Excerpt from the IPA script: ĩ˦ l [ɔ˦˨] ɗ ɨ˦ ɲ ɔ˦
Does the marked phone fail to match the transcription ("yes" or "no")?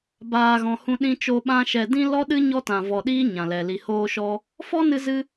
yes